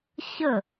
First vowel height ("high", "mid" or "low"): mid